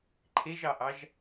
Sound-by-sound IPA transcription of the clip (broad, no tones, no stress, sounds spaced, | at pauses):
ǃʰ e ʒ ɑ ʔ ɑ ʒ